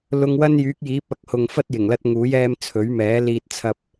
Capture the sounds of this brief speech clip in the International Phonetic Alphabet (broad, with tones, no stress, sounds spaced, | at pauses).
l ʊ˧ ŋ w ɐ˥ n j yː˨˥ k̚ j iː˨˥ p̚ ɐ˨˥ k̚ h ʊ˨ ŋ f ɐ˥ t̚ j ɪ˨˩ ŋ l ɐ˧ t̚ ŋ uː˨˥ j ɛː˧ m t͡sʰ ɵ˨˥ ɥ m ɛː˨˥ l iː˧ t̚ t͡sʰ ɐ˧ p̚